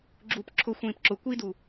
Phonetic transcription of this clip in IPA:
ɡ͡ǁup ǁʰʊ xʷĩːpǁʊ kʷidu

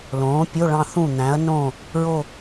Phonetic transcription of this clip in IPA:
lõː˩˥pʲo˧˥˧ ɭɑ̃˥˧θũ˥˩n̪æ̃˩˥ɐ̯nõ˥˩ | ɹo˥˧

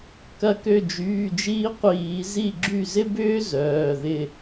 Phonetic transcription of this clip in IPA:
kɐ˧˩kø˧˩d͡ʒyː˩˧˩d͡ʒiː˦ qʷiː˧˩˧ zi˧˩ɡ͡ǁy˧˩zɪ˦bʏː˦ zœː˩˧˩ðɪ˥˩

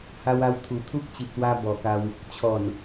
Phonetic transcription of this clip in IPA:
ha˧wa˧wt̪ʰu˨˩ t̪ʰu˦k̚t͡ɕi˨p̚t̪wa˧ bɔ˨˩ka˧w | t͡ɕʰɔ˨˩n

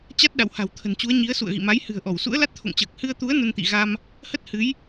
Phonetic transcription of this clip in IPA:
t͡ɕa˦˥t̚ ɗa̰˧˨wha̤˨˩wt̪ʰə̤˨˩nt͡ɕu˨˦ə̯ ɲi˨˦ə̯ sṵ˧˨ə̯ɣḭ˧˨ma˨˦j hɨ̤˨˩ə̯ʔɔ˧˩w sṵ˧˥ə̯la˦˥t̚t̪ʰo̰˧˨ŋt͡ɕəː˨˩k̚ hɨ˧ə̯t̪u˨˦ə̯ nə˧nt̪ḭ˧˨ ɣa˧m | hə˦˥t̚hɨ˨˦j

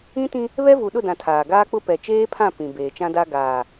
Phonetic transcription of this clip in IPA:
ĩ˦tĩ˦ | βɛ˦vu˨ɗʊ˦˨dã˨ tʰaː˨ɡaː˦k͡pʊ˦ pɛ˨t͡ʃeː˦pʰã˦˨ pĩ˨ beː˨t͡ʃã˦da˦ ɡaː˨

